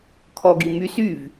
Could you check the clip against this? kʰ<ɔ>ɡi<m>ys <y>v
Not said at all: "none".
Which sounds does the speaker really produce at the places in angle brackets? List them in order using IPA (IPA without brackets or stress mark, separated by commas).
ɔ, m, y